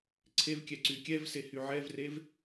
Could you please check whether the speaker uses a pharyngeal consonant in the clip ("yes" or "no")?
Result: yes